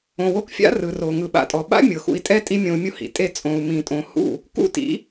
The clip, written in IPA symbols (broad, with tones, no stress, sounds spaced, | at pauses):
õ˨ w o˧ k fʲ a̰˦ r ɯ˨ r o˨ ŋ ɯ˨ ɓ a̰˨ tʼ ɔ˨ ɓ a̰˦ mʲ ɤ˨ x ṵ˧ i̯ tʼ ɛ˦ tʼ i˦ mʲ õ˧ u̯ mʲ u˦ h ḭ˨ tʼ e˧ t͡sʼ õ˨ u̯ m ĩ˨ tʼ õ˨ h ṵ˦˨ | k ṵ˦ t ḭ˨˦